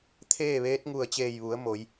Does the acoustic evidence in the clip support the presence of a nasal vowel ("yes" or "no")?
no